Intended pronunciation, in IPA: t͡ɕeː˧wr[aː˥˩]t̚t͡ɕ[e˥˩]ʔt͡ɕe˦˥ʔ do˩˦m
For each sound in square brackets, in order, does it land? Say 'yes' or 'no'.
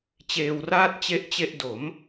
yes, yes

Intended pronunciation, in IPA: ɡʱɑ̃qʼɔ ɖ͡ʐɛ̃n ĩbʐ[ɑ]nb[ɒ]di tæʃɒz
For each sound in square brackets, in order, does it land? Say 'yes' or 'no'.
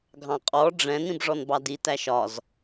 no, no

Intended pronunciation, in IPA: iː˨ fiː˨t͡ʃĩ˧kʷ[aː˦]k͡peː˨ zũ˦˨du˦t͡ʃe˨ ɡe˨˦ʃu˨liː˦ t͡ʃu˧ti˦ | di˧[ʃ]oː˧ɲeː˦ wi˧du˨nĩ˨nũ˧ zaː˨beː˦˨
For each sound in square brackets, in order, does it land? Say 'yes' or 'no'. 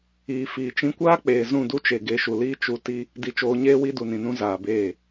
yes, no

